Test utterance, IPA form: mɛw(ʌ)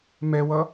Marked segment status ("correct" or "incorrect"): correct